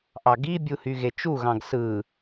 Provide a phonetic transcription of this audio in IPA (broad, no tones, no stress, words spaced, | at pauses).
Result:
ʔɑɡibʲuhy ɣet͡ʃuɣɑ̃ɡ sɯ